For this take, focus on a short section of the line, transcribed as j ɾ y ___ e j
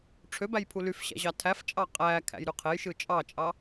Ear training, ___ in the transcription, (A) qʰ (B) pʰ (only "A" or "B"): A